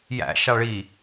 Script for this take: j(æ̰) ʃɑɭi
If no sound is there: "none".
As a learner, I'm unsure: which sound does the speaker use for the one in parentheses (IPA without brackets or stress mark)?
æ̰